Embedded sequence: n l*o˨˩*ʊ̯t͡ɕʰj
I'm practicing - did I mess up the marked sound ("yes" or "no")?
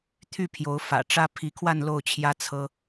yes